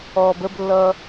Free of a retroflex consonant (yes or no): yes